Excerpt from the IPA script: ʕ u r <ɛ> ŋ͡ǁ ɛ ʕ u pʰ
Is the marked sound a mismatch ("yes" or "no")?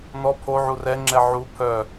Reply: no